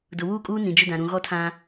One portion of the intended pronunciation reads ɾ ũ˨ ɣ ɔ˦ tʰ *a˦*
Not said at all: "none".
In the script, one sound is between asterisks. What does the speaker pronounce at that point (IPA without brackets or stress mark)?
ã˦